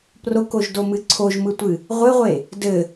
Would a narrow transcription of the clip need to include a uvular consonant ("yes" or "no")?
yes